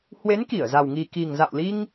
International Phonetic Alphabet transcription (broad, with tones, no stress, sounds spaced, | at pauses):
h w e˨˦ n k i˧˩ ə̯ z a˨˩ w ŋ i˨˩ k i˨˩ ŋ z a̰˧˨ w l i˧ ŋ